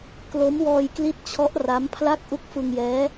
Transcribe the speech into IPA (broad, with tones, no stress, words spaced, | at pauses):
klo˦˥mwɔː˧jkli˦˥t̚t͡ɕʰɔ˦˥ʔ ra˦˥mpʰla˥˩k̚ ʔu˦˥k̚fɯ˧ŋjɛː˦˥